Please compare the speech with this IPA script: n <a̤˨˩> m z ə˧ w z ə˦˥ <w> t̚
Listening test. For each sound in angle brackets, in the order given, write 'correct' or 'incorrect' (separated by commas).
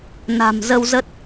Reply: correct, incorrect